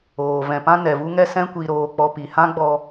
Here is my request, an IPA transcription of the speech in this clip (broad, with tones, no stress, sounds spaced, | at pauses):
oː˨ v ɛ̃˨ p ã˦ n ɛ˨ v u˦ ŋ ɛ˦ s ɛ̃˦ kʷ i˧ ɾ oː˧ k͡p ɔ˧ p i˨ h ã˦ ɡ͡b ɔ˧